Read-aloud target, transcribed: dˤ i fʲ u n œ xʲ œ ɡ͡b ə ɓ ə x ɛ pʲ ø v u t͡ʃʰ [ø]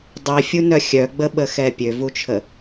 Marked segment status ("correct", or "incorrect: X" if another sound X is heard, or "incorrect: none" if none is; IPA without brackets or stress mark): incorrect: ə